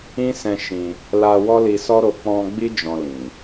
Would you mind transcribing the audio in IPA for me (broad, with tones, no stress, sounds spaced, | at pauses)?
ĩ˦ s ɛ̃˧ ʃ ĩ˧ | l a˧ w ɔ˦ l i˧ s ɔ˦ ɾ o˧ k͡p ɔ̃˧ ɡ͡b i˦ d͡ʒ ɔ̃˧ l ĩ˨